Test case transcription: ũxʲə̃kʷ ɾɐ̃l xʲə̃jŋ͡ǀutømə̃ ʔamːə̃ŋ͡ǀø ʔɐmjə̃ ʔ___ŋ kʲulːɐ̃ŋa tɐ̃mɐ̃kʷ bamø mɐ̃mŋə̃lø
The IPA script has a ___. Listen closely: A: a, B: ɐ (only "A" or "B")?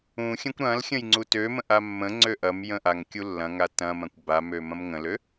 A